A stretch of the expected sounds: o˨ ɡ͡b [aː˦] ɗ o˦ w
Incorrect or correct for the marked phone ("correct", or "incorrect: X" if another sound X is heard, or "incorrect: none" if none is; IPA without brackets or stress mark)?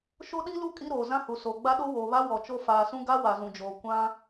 incorrect: a˦